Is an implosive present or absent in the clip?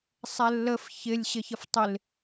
absent